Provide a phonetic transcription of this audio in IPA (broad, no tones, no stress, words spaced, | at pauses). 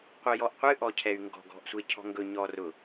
qʷɛjɔʔqʷɨ ʔɔcʰɛy̯ŋɡɔ̤ ɡɔ̤ʔsʷecʰɔ̤ŋɡɵ ɲɔrʊ